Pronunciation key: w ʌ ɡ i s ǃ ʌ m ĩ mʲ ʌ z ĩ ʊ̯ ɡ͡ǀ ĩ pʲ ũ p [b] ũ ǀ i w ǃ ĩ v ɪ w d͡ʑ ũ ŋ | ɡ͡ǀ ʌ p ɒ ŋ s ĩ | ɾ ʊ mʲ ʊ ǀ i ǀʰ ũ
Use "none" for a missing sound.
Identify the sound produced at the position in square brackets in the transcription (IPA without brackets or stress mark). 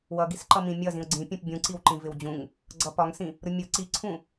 bʲ